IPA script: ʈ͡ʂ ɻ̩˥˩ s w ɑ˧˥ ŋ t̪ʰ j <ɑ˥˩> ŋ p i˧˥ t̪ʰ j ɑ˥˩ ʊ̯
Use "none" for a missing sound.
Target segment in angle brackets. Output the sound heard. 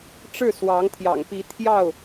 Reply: ɑ̰˨˩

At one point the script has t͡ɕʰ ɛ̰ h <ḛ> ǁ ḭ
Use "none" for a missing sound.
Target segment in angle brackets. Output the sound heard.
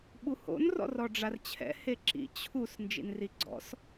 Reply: e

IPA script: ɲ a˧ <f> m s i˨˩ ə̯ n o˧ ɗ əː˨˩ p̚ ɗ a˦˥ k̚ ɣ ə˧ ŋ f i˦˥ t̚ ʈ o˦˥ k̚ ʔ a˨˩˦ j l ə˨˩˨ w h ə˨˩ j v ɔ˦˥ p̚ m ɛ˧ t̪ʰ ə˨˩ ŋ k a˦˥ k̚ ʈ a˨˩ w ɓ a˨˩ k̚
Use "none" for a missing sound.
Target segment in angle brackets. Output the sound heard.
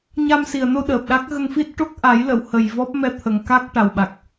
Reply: none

